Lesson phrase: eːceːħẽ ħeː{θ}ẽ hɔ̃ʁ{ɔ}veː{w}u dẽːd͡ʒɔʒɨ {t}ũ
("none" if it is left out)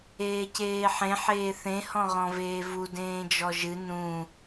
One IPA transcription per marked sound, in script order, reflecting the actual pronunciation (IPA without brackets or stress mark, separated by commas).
θ, ɔ̃, v, n